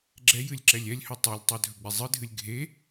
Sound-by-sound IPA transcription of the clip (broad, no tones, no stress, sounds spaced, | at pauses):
ɡ͡ǁ ɛ j ɨ lʲ ǁ ɛ lʲ ɛ lʲ h ɵ tˤ e lʲ tˤ ɛ dʱ ɵ ɡ͡b i zˤ ɨ dʱ ɨ lʲ ɡʱ e